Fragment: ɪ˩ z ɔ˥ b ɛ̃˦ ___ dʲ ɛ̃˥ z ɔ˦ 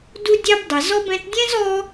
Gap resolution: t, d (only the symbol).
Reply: t